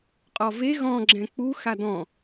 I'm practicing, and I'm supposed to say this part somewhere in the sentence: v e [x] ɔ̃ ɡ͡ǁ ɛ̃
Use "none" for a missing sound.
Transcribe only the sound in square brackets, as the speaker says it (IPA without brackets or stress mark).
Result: ɣ